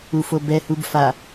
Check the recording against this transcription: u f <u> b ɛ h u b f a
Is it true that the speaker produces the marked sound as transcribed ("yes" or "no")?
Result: no